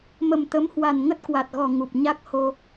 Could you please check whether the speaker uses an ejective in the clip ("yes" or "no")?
no